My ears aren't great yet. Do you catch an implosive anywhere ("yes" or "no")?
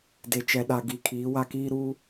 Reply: yes